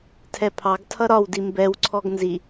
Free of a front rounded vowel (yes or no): yes